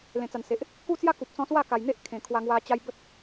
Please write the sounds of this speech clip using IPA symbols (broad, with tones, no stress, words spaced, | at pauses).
lẽ˨˩t͡sa˨˩nse˨ʔ | ku˦t͡sja˦ku˨p̚ t͡sɔ̃˧swa˥˧ka˨˩j n̪e˦ʔkʰẽ˨˩ kʰwa˧ŋwa˧ t͡ɕa˧j bə˦t̚